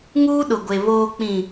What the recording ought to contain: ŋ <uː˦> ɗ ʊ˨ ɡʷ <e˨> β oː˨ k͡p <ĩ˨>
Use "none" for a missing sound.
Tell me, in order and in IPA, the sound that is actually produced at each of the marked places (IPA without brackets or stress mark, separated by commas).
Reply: uː˦, e˨, ĩ˨